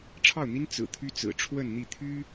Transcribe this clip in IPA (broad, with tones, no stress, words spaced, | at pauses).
ʈ͡ʂʰɑ˥˩ʊ̯n̪i˥n t͡sɹ̩˨˩ t̪ʰy˥t͡sɹ̩˨˩ ʈ͡ʂʰwə˥˧nn̪i˥˩t̪ʰy˥